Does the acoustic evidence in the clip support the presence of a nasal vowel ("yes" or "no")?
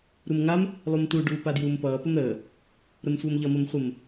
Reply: no